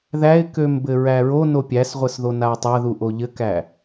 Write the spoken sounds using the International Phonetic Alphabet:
ðæɪ̯køm bɘɹæɹono pʲæsʁʷɘsðo naʊ̯tˤaðuʔo ʎɘkæ

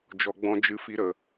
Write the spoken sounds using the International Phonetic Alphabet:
d͡ʒɔ˨ɡ͡bɔ̃˧ d͡ʒɨ˧fi˧ɾə˨

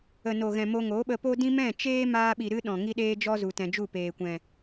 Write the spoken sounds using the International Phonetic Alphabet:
ə˨no˨ɣɛ̃˨ mo˧ŋo˨˦ɓə˧ po˦dĩ˦ mɛ̃˦˨t͡ʃeː˦ maː˧ɓi˨ɾɨ˧ ɗɔ̃˨ ŋi˦ɗeː˦d͡ʒɔ˦zu˨ tɛ̃˨d͡ʒu˦˨peː˨kʷɛ̃˨

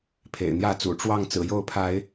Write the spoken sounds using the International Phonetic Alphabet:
pʰḛ˨˩ɪ̯n̪jä˥˨t͡sṵ˨˩ ʈ͡ʂwɑ˥˨ŋ t͡sɹ̩˨˩jo˥˨ʊ̯ pʰa˨˦ɪ̯

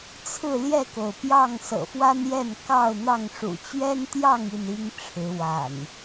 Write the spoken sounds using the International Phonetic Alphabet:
t͡sʰɹ̩˥˨ ljɛ˥˨ko˩ʊ̯pjɑ˥˨ŋ sɤ̰˨˩fwa˦njɛ˥˨n kɑ˥˨ʊ̯n̪ɑ˥˨ŋʂṵ˨˩ t͡ɕɥɛ˦nt̪jɑ˥˨ŋ i˥˨ni˦ŋʈ͡ʂʰɻ̩˨˦ wa̰˨˩n

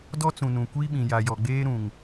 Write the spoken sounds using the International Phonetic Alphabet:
dɔ˦t͡sũ˨nũ˨ kʷi˦ɓĩ˨ ja˨jɔ˨ɡ͡beː˦ ɾũ˨ŋ

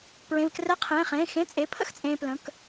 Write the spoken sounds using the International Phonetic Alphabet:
pɹẽ˩˧˩vkrɛ˧˥˧qʰẽː˩˧˩χẽː˩˧˩ xẽ˧˥˧t͡sʼe˩˧˩ pʰə̰˥˨x t͡sʼẽː˧plə̃˩˧˩k

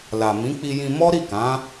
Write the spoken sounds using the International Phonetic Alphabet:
la˨mĩ˨˦ k͡pi˧jĩ˧mɔ˦ ɾi˦˨kã˨˦

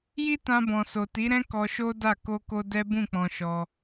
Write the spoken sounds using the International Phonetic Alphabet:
ji˦tã˧bɔ̃˨ so˨ti˨˦ ɾɛ̃˦ kɔ˧ʃo˦da˦˨ ko˧ko˧ dɛ˦bũ˦˨ k͡pɔ̃˧ʃɔ˧

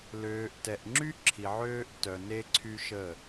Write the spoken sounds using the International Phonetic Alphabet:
løː˨ʔtɛ˨ʔŋ͡ǁy˦ ǁʰi˨ʕøː˦ʔ tœ˨ne˦ǀʰy˦ʃə˦˨

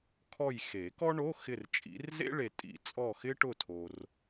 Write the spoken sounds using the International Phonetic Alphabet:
kʰɔ˦˨jxe˨˩˦ kɔ˥ ɳo˧˥˧ xɪ˦˨rt͡ʃʼḭ˨˦rzḛ˥ɭe˨ tʼḭ˨˩˦t͡sʼɔ˦˨xɪ˥ ʈʊ˦˨tʰo˨r

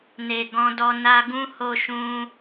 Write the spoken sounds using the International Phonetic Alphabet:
ne˨ɡɔ̃˧dɔ˧ na˧ɡũ˦ ho˧ʃũ˧

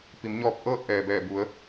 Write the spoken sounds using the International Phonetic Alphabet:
pi˩˧mɲɔː˧p̚ ʔɤː˥˨t̚ʔɛː˩bɛː˧˩ bu˩˧ə̯

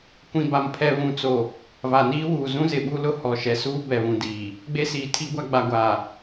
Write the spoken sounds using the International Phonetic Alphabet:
kʷĩ˨ba˨mpʰɛ˨ βũ˨t͡so˨ | va˨niː˦wuː˨ zũ˦zɪ˨ɓu˦lʊ˦˨ hɔ˨ʃɛ˨suː˦ bɛ˨βũ˨ diː˨ | ɡ͡be˦siː˨tʰi˦ɡʷa˦ ɡ͡ba˨ɡʷaː˨

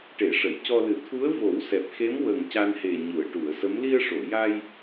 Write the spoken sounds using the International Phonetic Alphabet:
ʈe˨˩˦ʂə˨˩˨jcɔ˧lɨ˨˩˦ t̪ʰu˧˥ə̯ vo˨˩˦wsɛ˨˩p̚xe˧˥m wə˨˩ŋ ca˧nhe˨˩ ɲu˨˩˨ə̯ʈu˨˩˨ə̯ sə˧˥m li˧ə̯ʂo˨˩˨ ja˧j

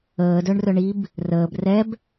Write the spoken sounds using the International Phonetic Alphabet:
əːdœɳrœ ɳib | rəːb rɛb

